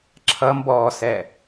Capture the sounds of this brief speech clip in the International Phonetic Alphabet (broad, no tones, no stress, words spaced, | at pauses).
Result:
ǁʰʌmbɔːsɛ